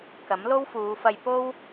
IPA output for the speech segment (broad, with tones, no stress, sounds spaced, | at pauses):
k ɐ˨˥ m l o˥ w f uː˨˧ f ɐ˧ j p o˥ w